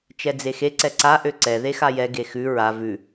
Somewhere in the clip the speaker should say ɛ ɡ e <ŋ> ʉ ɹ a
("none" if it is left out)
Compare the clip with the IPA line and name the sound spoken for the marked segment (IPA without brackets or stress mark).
x